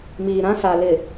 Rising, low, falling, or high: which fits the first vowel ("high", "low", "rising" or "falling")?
low